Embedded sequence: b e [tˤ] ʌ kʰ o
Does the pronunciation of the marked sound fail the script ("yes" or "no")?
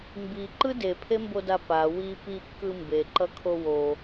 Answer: yes